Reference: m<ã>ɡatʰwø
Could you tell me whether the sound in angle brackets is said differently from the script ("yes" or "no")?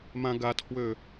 no